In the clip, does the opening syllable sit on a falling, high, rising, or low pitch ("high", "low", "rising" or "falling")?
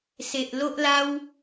low